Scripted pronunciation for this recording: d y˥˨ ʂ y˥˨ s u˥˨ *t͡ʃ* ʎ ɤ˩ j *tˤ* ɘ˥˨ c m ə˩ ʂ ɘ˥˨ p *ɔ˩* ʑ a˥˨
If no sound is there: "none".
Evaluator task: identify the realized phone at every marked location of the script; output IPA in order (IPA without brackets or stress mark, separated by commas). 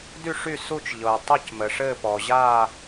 t͡ʃ, tˤ, ɔ˩